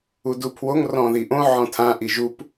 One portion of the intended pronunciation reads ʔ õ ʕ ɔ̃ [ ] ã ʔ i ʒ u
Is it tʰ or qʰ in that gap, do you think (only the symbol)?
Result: tʰ